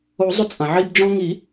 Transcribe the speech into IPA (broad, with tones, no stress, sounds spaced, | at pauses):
o˨˩˦ zˤ ʏ˧ t͡sʼ ɐ̃˩ ʕ i˧ b d͡ʒ ɔ̃˧ ŋ i˨˩˦